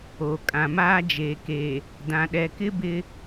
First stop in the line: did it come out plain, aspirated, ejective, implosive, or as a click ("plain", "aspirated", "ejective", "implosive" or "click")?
ejective